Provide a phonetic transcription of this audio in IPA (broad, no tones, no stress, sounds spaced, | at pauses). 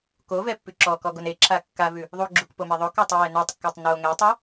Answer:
k o v ɛ pː ʉ ǁ ɔ k ɔ ɡ o n e ǁʰ a kː a v ʉ | ðˤ u ɡ͡ǁ u k p o m e ðˤ o k ɔ tˤ ɛ w ɛ n ʉ tˤ kː a tˤ n o ŋ ɛ tˤ u